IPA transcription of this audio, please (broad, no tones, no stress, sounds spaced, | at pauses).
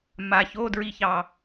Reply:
m a ç o d ɹ i ç ɑ